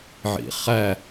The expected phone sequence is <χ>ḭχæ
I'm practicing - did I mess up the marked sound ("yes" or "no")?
yes